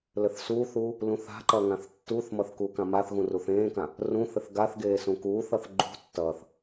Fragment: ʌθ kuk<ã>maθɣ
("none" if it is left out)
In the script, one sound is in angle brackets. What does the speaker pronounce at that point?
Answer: ã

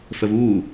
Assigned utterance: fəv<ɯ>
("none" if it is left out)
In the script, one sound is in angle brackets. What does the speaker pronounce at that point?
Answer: u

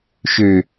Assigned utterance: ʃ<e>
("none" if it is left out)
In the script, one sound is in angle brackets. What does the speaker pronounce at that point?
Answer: ø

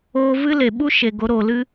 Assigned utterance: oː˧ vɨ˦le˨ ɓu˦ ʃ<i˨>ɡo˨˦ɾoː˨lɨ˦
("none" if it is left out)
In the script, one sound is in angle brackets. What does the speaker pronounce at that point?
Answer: e˨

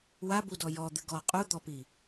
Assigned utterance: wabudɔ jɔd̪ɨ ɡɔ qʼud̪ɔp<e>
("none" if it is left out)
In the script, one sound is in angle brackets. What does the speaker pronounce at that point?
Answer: i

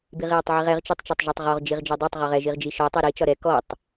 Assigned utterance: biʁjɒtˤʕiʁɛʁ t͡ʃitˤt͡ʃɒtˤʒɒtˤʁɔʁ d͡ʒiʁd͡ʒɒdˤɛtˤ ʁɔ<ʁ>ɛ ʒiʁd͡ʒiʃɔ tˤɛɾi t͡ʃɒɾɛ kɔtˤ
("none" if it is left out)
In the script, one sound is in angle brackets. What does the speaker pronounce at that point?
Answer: ʁ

